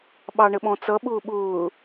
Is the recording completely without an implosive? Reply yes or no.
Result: no